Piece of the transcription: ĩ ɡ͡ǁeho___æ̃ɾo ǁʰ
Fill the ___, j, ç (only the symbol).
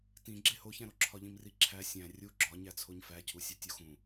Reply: ç